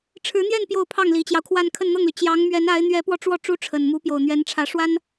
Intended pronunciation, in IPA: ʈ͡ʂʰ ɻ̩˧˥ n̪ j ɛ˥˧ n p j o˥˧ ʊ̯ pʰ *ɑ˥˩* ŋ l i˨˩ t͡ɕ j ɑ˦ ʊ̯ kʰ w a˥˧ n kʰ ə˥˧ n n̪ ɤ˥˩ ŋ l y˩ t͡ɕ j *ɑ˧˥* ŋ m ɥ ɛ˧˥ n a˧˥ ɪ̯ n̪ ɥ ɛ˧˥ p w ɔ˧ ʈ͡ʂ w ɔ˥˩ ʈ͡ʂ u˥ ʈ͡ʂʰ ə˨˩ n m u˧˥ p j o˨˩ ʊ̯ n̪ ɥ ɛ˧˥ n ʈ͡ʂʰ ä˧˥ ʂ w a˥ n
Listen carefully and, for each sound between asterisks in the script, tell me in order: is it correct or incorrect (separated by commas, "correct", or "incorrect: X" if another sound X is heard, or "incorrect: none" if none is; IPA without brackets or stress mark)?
correct, correct